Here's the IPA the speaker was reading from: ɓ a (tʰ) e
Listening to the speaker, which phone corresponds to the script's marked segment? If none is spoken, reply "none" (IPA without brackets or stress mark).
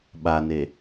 n